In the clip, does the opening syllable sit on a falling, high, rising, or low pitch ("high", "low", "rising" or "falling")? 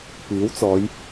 rising